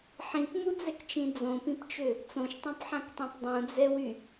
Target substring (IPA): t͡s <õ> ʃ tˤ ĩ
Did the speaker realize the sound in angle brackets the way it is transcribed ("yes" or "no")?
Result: yes